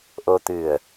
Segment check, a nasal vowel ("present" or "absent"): absent